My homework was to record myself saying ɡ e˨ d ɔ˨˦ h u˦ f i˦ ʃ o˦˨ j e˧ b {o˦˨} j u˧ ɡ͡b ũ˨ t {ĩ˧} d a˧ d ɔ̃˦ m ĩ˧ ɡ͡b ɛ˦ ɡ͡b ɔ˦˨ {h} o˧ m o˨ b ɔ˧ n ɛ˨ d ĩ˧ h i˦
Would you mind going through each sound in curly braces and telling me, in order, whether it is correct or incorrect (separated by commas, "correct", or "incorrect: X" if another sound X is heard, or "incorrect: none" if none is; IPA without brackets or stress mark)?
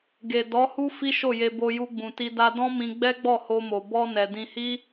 incorrect: o˧, incorrect: i˧, correct